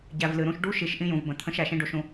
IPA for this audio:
ɟ æ˨ v l ɨ˨ ɾ ũ˦ ʃ ɖ u˦ ʃ i˨ ʃ ʔ ĩ˦ j ũ˨ v b ə̃˨ t̪ʰ ə̃˦ ʃ æ˨ ʃ ĩ˦ ɖ o˦ ʃ ũ˦

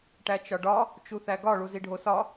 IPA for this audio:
ʈ æ t͡ʃ ɒ ɖ ɒ | t͡ʃ u θ æ ɡ ɒ ɭ u z i ɖʱ o s ɒ

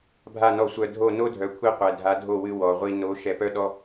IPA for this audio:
bʱ a˦˨ n ɔ˧ sʷ œ˧ dʱ o˦˨ n o˦ dʱ œ˨ kʷʰ i˧ qʷ ɛ˨ dʱ a˨˦ dʱ o˦˨ w ɨ˧ w ɔ˨ ʁʷ i˧ n o˨˦ ʃ ɛ˧ p œ˦ ɗ ɔ˦

